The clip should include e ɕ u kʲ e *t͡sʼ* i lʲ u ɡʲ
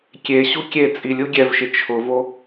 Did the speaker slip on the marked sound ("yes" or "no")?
no